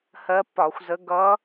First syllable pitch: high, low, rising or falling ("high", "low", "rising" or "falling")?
rising